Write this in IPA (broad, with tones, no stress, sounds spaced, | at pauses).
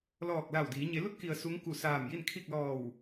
l ɔː˧˩ k̚ l a˧˩ w d iː˩˧ ɲ e˩˧ l u˧˥ t̚ k i˩ ə̯ s u˧˥ ŋ k u˧˩ s aː˧˩ m j i˥˨ n kʰ i˥˨ k̚ l ɔː˧˩ w